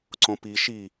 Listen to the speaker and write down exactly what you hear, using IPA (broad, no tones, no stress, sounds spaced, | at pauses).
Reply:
ǀ õ p i ʃ i